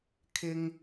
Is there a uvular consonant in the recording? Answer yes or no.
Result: no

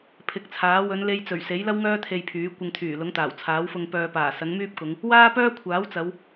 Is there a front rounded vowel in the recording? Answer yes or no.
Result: yes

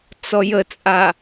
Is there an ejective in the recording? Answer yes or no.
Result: yes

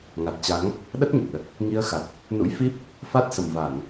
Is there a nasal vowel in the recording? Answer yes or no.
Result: no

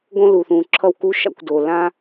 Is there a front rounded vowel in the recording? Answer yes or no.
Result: no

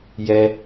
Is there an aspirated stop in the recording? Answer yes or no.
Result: no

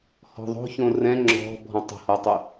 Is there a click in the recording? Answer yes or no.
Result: yes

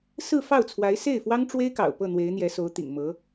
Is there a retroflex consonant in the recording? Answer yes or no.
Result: yes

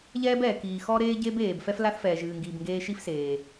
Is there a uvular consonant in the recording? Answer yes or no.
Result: no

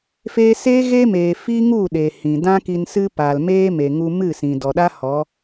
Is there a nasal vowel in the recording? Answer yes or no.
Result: yes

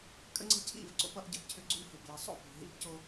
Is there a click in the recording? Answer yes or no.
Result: yes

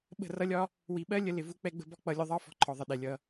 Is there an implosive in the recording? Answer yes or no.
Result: yes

